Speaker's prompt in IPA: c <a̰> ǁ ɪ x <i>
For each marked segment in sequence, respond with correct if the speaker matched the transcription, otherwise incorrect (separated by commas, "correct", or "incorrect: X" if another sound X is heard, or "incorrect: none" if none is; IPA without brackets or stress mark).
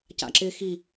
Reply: correct, correct